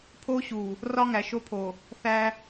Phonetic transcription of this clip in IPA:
pʰ o˦ ɕ u˨ | r ɒ˦ ŋ æ˨ ʃ o˦ pʰ o˨ | θ æ˦

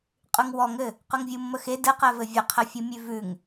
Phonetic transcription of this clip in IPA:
qʼ ʉ ŋ w ɔ ŋ ɘ | q ʉ ŋ vʲ u mː ə x e d ɘ q ɛ v ɘ vʲ ə qʰ ɘ fʲ u mʲ ʉ v ʉ ŋ

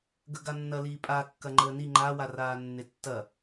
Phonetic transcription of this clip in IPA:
ɡ ə ɡ a nː ɐ l iː pʼ a kː ɐ ŋ͡ǃ əː n i ŋ͡ǃ a w a r aː nː e tː ɐ

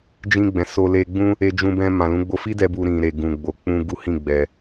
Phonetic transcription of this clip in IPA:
d͡ʒ ĩ˧ ɡ͡b ɛ̃˨ s o˧ l e˧ ɡ͡b ũ˦ | e˧ d͡ʒ ũ˧ b ɛ̃˧ m ã˨ l ũ˨˦ ɡ͡b o˧ f i˦ d ɛ˧ b u˧ ɾ ĩ˨ ɾ e˨ ɡ ũ˨ ɡ͡b o˨ k͡p ũ˧ ɡ u˦ h ĩ˦˨ ɡ͡b ɛ˨

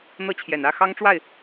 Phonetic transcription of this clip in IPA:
n̪ ɤ˥˩ t͡ɕʰ j ɛ˨˩ n ä˥˩ x ɑ˥ ŋ ʈ͡ʂ w a˥˩ ɪ̯

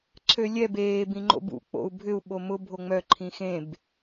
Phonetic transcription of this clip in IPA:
ǀʰ ø lʲ ɛ b eː b ĩ ŋ͡ǃ o̰ b ṵ k͡p o̰ u̯ bʱ ʏ u̯ ɓ o m ʊ bʱ o ŋ͡m œ ǃʰ ĩ x ẽ b

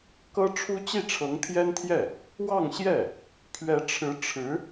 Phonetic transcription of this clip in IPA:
k ɤ˥ ʈ͡ʂʰ u˥ t͡ɕ i˥˩ ʈ͡ʂʰ ɤ˧˥ ŋ t̪ʰ j ɛ˥ n t̪ʰ j ɛ˥˩ | w ɑ˥˧ ŋ ɕ j ɛ˥˩ | pʰ ɥ ɛ˧˥ ʈ͡ʂʰ ɻ̩˧˥ ʈ͡ʂʰ ɻ̩˧˥

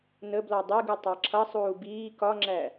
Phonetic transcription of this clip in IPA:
n ə b l ɔ dˤ i ɡ u tˤ ɑ ǁʰ ʌ sˤ uː b iː k ɒ ŋ͡ǁ æ

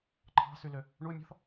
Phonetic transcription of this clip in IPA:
ǃʰ ɑ̤ s y l ø | ɳ u mʲ ɔ̤ θ

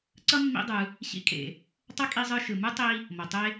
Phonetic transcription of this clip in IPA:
ǀ ʌ˥ mː ḭ˦ dˤ ɯ˨ | ɕ ḭ˦ kʼ ḛ˩ | tˤ ʌ˥ kʼ i˦ zˤ ɯ˦ ʃ ɯ˩ m ɯ˥ tˤ i˦ | m ʌ˩ tˤ e˥

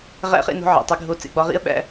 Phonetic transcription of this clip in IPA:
ʁ æ̰˧ χ ḛ˧ n o̤˧˥ ʕ ḛ˩ tˤ i˩˧ ɡʱ o˧ t͡s ḛ˩˧ ɡ͡b ɒ˧˥ ʁ ḭ˥ ə̯ ɓ æ̰˧

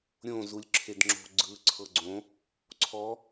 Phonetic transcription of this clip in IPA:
ɾʲ õ z u lʲ ǁʰ e d ŋ͡ǁ o̤ ɡ͡ǀ ɯ ǀʰ ɤ ɡ͡ǀ õ | ǀʰ ɔ

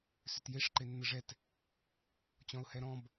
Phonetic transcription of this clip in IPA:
s ʏ t j e ʂ ǃ e nː ə ʐ ɛ t | t͡ɕ ɔ̃ ʊ̯ h ɛ ɾ ɔ̃ b

